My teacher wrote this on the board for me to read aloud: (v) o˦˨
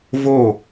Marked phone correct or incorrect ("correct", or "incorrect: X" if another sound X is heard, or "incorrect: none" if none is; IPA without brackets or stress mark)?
correct